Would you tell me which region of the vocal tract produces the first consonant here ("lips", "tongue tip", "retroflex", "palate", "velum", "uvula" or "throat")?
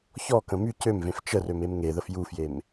palate